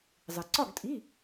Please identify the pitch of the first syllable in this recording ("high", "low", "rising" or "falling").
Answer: low